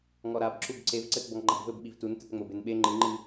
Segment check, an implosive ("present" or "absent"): present